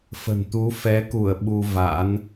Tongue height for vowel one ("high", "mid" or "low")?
mid